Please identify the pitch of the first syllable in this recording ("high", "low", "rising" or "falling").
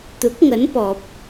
rising